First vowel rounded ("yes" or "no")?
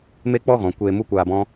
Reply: no